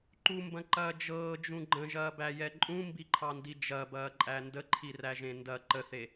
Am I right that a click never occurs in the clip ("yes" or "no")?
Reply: no